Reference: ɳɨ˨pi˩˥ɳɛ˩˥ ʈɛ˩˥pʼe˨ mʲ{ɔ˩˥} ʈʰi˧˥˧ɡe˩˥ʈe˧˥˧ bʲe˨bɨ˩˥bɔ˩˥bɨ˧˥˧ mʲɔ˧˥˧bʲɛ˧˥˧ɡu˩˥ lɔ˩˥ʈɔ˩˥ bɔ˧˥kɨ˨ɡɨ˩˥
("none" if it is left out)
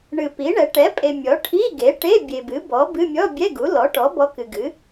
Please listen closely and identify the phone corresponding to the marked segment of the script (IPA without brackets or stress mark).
ɔ˩˥